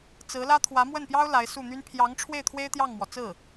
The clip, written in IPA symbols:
t͡s ɹ̩˧˥ l ä˥ t̪ʰ w ä˧˥ m w ə˥˩ n p j ɑ˥ ʊ̯ l a˧˥ ɪ̯ s u˥˩ n̪ y˥ n pʰ j ɑ˧˥ ŋ ʈ͡ʂʰ w e˥˩ ɪ̯ t̪ʰ w e˥ ɪ̯ t̪ j ɑ˥˩ ŋ m w ɔ˩ t͡s ɹ̩˥˩

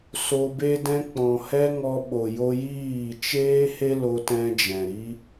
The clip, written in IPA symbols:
s o˧ b e˦ d ɛ̃˦ k͡p ɔ̃˨ h ɛ˦ ŋ ɔ˧ ɓ o˨ j o˧ j iː˦˨ t͡ʃ eː˦ h e˦ l o˦ t ɛ̃˦ d͡ʒ ɛ̃˨ ɾ i˦

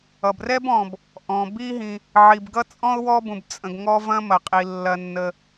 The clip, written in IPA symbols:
ʌ˩ b r ɛ˥ b ɔ̃˩ b | ʔ ɔ̃˩ b i˥ ɦ ĩ˩ | ʕ i˩ b ɡ ʌ˥ t͡sʼ ɔ̃˥ ʊ̯ w ɔ˥ b ũ˩ b t͡sʼ ə̃˩ ɡ ŋ ɔ˥ v ɐ̃˥ m ɐ˩ qʼ i˩ lː ɐ˩ nː ə˩

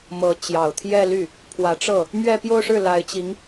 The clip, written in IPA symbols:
m ɤ˧˥ t͡ɕ j ɑ˨˩ ʊ̯ t̪ʰ j ɛ˥˧ l y˥˩ | pʰ w ä˧˥ ʈ͡ʂ ɤ˥˩ | m ɥ ɛ˥˧ p j o˥˧ ʊ̯ ʂ ɻ̩˥˩ l a˧˥ ɪ̯ t͡ɕ i˧˥ ŋ

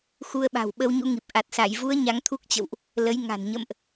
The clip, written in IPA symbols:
x u˧ ə̯ ɓ a̤˨˩ w ɓ ə˧ w ɲ ṵ˧˥ ŋ i˨˩ p̚ ʔ a˨˩ t̚ s a˧˩ j v u˨˦ ə̯ ɲ a˨˦ ŋ t̪ʰ u˦˥ k̚ t͡ɕ ə̰˧˨ w ʔ | l ə˨˦ j ŋ a̤˨˩ n ɲ ə̰˧˨ m ʔ

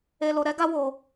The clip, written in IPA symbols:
e˧ l o˧ ɾ ɛ˦ ɡ a˦ w o˧

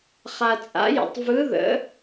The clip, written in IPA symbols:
χ a˧ t͡sʼ a̰˧˥ j ə̰˧ tˤ v ɯ˧˥ ð ə̰˧˥

